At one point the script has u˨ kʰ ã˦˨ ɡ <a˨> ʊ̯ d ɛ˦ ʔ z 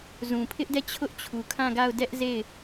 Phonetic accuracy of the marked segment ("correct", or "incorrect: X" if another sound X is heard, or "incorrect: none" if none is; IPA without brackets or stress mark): incorrect: a˦˨